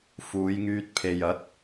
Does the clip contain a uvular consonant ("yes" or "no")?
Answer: no